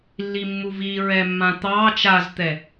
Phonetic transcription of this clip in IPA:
lː i mː u v i ɹ ɛ mː ã t̪ ɑː t͡ʃ a z t̪ ɛ

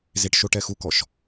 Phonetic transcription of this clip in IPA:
z e ʈ ʃ o ʈ ɛ x u k ɔ ʃ

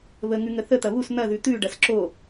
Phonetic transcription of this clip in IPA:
β ə ŋ ʉ ŋ ə θ ə t̪ ɐ β u s n̪ ɐ ð ʉ t̪ ʉ ɖ ɐ s ǁ o

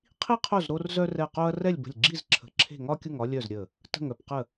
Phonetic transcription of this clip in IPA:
qʰ i˥ qʰ o˥˨ z ɾ o˥ r z œ˥ r ɛ˥˨ q o˥ ɐ̯ r ɛ˥˨ lʲ b ə̤˧˩ lʲ ɡ͡ǁ i˥˨ z ǁʰ ə̤˧˩ ǁʰ e̤˥˨ ŋ ɒ˥ kʲ ʊ˥˨ ŋ ɒ˥ lʲ œ˥˨ z ɾʲ ə˧˩ | t ə̤˧˩ ŋ œ˧˩ p q ə˧˩

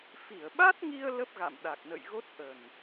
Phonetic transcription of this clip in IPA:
f i˧˩ ə̯ ɓ a˦˥ t̚ ŋ i˧ ə̯ l ə˦˥ p̚ ɣ a̰˧˨ m ɗ a˨˩ k̚ n ə̰˧˨ j ɣ o˦˥ t̚ ʔ ə˨˩ n

